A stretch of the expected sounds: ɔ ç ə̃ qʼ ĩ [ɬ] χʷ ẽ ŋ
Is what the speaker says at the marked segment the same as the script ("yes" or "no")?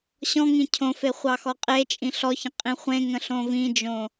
no